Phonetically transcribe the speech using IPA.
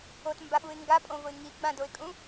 o t m b a ɓ u ɪ̯ ŋ ɡ a pʼ õ v ʊ ɪ̯ ŋ i ɡ͡b ã d o ɪ̯ kʼ ũ

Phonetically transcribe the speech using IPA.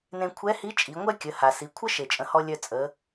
n ẽ˧ kʷʰ ɛ˧˥ h i˧˥ t͡ʃʼ i˩˧ ŋʷ ɛ˥ kʲ ə˩˧ h a˩ s i˩˧ kʷʰ ə˥ ʃ e˩ t͡ʃʼ ə̃˩˧ h ɔ˧ lʲ œ˧ t͡sʼ ə˩˧

